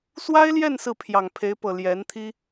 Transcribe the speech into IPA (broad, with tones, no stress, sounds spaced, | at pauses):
s w a˥ ɪ̯ l j ɛ˥˧ n s ɹ̩˥˩ pʰ j ɑ˨˩ ŋ pʰ e˧˥ ɪ̯ p ɤ˨˩ l j ɛ˧˥ n t̪ʰ i˥